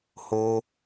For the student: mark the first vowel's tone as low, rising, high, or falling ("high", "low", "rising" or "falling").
high